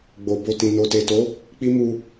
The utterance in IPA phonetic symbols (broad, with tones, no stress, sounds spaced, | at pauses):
ɡ͡b o˨ b o˧ t ĩ˨ n o˨ t e˨ t o˨˦ | k͡p i˦ m u˧